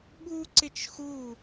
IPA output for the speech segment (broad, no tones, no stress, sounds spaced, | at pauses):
ɓ u ǀ ɪ t͡ʃ x u